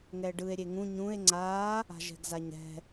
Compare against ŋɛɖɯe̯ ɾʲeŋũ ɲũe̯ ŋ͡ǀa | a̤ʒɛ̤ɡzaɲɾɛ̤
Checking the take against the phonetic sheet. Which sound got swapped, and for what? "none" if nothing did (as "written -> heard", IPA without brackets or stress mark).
none